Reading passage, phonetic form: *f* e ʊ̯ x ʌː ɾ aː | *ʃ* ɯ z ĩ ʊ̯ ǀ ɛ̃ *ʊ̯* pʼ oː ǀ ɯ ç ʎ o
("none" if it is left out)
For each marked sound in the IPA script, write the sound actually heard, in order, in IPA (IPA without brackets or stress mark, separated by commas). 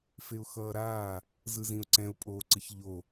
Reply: f, z, ʊ̯